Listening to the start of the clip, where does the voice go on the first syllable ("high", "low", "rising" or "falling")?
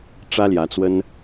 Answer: high